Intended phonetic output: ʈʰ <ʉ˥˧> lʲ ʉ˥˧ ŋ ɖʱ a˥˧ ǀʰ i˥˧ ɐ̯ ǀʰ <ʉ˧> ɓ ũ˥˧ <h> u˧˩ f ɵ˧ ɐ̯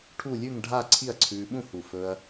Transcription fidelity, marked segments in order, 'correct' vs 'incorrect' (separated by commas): incorrect, incorrect, correct